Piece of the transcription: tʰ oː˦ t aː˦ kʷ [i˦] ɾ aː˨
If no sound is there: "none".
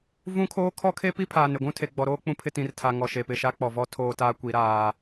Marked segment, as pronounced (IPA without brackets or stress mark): i˨˦